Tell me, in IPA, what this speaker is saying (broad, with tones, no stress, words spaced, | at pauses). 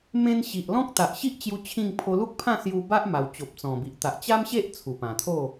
mẽ˧nɕi˨ʔ lɔ̃˦k̚t̪a˨ʔɕi˦ʔt͡ɕju˧ t͡ɕʰĩ˥˧ŋ pʰo˧lu˦k̚pʰã˥˧ sju˧ ba˦ʔma˨˩w t͡ɕo˨p̚t͡sɔ̃˨˩bi˨ʔ t̪a˨ʔt͡ɕa˦m ɕe˦ʔ t͡sʰu˨˩pã˨˩t̪ʰo˥˧